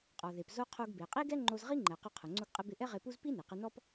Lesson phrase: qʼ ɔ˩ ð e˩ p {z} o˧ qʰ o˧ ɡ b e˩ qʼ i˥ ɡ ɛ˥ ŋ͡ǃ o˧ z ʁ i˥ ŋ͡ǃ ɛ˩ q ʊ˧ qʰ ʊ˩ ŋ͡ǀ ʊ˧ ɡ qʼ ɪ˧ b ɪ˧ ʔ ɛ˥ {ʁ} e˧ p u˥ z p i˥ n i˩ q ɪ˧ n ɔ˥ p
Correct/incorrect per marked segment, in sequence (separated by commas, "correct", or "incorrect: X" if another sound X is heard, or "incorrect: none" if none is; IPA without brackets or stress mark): correct, correct